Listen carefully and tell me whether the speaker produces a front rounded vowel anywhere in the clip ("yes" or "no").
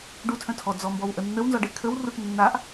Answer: yes